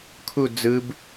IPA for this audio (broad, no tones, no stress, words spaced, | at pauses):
kʰu d͡zɯb